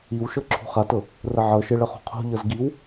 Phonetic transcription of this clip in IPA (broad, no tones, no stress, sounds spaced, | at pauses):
i w ʃ ɤ ǁʰ ṳ χ a t ɤ | r ə ʕ ɤ ʃ e ɭ ə χ o̤ qʰ o̤ ʎ ɤ z ɡ i w